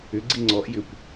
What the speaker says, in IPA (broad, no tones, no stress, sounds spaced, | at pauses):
ʏ ɡ͡ǀ i ŋ͡ǀ ɔ ʔ j ʏ kʷ